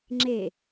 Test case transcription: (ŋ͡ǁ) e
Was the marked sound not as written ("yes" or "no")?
no